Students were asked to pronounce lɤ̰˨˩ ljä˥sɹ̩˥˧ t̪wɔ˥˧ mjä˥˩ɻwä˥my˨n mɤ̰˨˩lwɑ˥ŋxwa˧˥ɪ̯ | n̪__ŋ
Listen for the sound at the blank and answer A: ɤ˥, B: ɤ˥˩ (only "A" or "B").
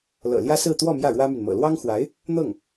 B